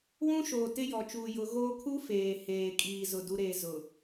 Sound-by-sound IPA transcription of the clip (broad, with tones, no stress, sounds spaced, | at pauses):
w ũ˦ ʃ oː˨ t ɪ˦ j ɔ˨ t͡ʃ uː˨ j ʊ˨˦ ɣ oː˦ kʰ u˦ f eː˨ h eː˨ kʼ iː˨ z ʊ˦˨ d u˦ ɾ eː˦ z ʊ˨